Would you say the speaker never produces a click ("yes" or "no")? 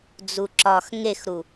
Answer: no